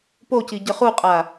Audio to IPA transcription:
p o c i ɟ ə χ u qʼ a

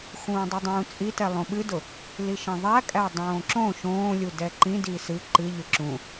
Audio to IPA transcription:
x ũː dˤ ʊ dˤ ũː t͡sʼ i t ɛ lˠ õ ɓ ɨ d ʊ | l i ʃ ẽ ðˤ æ kʼ æ dˤ õː ǁ õ ʃ õː lʲ u d ɛ ǃ ĩ d iː s ɨ ǃ ɨ ʎ ɨ ǁ ũ

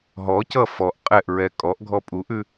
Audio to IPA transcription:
ɦ ɔ c ʌ f ɔ ʔ qʼ ɛ ʔ ɹ ɛ kʼ ɔ ʔ ɡʱ ɔ pʼ u ʔ ʉ

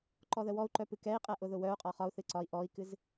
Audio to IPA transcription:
ǃ ɔ ð ə w ɔ u̯ ǃ œ p ɨ k ɛ i̯ qʼ ɛ ʔ ʊ ð ʊ w œ u̯ qʼ ɒ χ ɒ u̯ θ ɨ ǀ ɒ i̯ ʔ ɔ i̯ k ɨ z

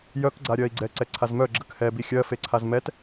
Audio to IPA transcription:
j œ k ɡ͡ǀ a ɾʲ ɜ i̯ ɡ͡ǀ ɛ ǀ ɛ ǀʰ a z m œ ɡ͡ǁ ə k h ɛ b i xʲ ɜ f e ǀʰ a z m ɛ t

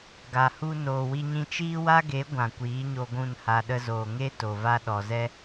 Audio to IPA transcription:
ɡ a˨ h u˧ n oː˨ w i˧ ɲ ĩ˧ t͡ʃ iː˦ w a˦ ɡ e˨˦ ɡʷ ã˨ kʷ iː˨˦ ɲ o˧ ɡʷ ũ˦˨ n h a˧ ɗ ə˦ z oː˧ ŋ e˦ t o˨ v a˧ ɗ ɔ˨ z ɛ˦

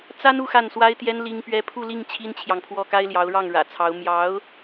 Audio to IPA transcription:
t͡s a˥ n u˥˧ x a˥˩ n s w a˥ ɪ̯ t̪ j ɛ˥ n l i˥ ŋ p ɥ ɛ˥ pʰ u˥˧ l i˥˩ ŋ t͡ɕʰ i˥ n t͡ɕʰ j ɑ˨ ŋ pʰ w ɔ˥˩ k a˥ ɪ̯ l j ɑ˧˥ ʊ̯ ɻ ɑ˥˩ ŋ ɻ ä̰˨˩ t͡sʰ ɑ˧˥ ʊ̯ m j ɑ˧˥ ʊ̯

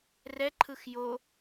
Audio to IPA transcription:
r ɛ ǃʰ ɯ x j o

